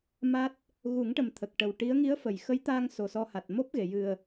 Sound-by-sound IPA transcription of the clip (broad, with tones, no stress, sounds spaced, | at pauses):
m a˦˥ t̚ | ɣ u˨˩˦ ŋ ʈ ə˨˩ m t̪ʰ ə˨˩ k̚ ʈ ə˨˩ w ʈ i˧˥ ə̯ ŋ i˧˥ ə̯ f ə˨˩˨ j x ə˧˥ j t̪ a˧ ŋ s o˨˩ s ɔ˧ h a˨˩ t̚ m o˦˥ p̚ ɣ e˨˩˨ j ɨ˨˩ ə̯